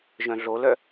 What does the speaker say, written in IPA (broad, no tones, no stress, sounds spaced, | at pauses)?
ʒ œ̃ ɮ o l œ